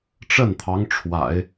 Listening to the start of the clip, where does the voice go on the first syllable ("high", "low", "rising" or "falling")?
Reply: falling